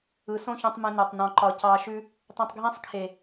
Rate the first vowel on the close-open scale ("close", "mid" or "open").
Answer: close